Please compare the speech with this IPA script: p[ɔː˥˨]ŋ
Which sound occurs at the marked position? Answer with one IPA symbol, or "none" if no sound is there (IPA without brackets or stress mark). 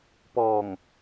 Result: ɔː˧˩